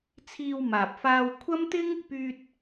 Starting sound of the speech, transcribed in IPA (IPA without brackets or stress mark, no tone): t͡sʰ